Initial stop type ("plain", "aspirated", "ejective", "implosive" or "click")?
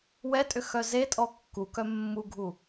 ejective